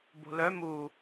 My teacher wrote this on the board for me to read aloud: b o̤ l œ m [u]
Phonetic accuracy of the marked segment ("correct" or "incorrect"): correct